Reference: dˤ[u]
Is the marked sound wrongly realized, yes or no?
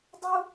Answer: no